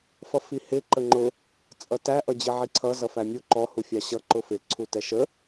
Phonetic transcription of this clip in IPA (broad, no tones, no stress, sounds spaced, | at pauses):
f ʌ f i h ɪ ǃ ə ŋ͡ǃ ʊ | t͡sʼ ʌ t æ ʔ ʌ d͡ʑ ɪ ʕ i ǀʰ ʌ z ʌ f æ mʲ u ǃ ɔ h u fʲ ɑ ɕ ʌ ǃ ʊ f ɪ ǀʰ u t ɛ ʃ ə